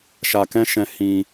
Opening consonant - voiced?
no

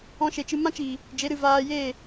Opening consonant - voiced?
no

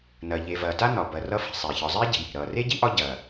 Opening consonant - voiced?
yes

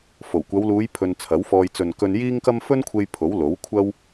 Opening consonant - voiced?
no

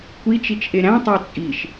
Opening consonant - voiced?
no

